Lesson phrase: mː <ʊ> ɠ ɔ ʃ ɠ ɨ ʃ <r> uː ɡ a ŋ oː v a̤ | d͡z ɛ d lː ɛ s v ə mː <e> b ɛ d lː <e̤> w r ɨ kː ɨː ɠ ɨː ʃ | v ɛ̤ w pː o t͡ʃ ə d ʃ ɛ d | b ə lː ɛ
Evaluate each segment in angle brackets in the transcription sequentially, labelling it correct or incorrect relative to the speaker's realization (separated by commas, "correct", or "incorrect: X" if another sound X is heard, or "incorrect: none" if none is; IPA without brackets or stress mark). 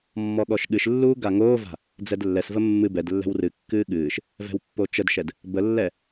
incorrect: ɔ, incorrect: lː, incorrect: ɨ, incorrect: ɛ̤